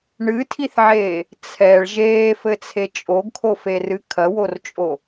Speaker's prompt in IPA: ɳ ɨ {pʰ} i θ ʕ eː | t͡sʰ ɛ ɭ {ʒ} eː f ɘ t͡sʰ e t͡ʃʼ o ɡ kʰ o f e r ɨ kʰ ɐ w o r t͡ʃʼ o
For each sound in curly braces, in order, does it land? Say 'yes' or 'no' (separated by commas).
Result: no, yes